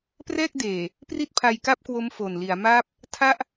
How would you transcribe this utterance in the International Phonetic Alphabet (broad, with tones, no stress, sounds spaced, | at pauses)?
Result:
p r ɛː˥˩ k̚ d eː˨˩ | p r i˥˩ t̚ pʰ a˧ j k a˥˩ p̚ k w o˦˥ m f o˨˩ n l i˩˦ a̯ m aː˥˩ p̚ | tʰ a˥˩ ʔ